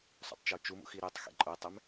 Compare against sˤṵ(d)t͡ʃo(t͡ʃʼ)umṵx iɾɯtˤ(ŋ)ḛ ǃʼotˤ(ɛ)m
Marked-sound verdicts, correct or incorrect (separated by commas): incorrect, incorrect, incorrect, correct